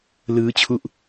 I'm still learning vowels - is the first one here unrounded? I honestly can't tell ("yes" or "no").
yes